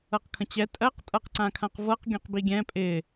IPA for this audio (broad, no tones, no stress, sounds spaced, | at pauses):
ɤ q kʰ ə̃ t͡ɕ ɛ tʼ ɜ q tʼ ɤ q ǀ ã kʰ ã q v ɤ q ɡʲ ɔ̃ q b i ɡʲ ɛ̃ pʼ ɪ